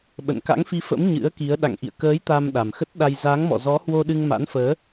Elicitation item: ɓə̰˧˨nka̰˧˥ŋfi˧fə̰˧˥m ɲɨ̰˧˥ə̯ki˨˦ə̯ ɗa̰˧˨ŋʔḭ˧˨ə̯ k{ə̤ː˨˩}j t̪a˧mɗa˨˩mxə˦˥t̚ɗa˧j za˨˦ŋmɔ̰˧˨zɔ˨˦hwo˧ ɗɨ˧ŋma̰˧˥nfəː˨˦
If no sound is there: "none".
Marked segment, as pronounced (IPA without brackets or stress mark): əː˨˦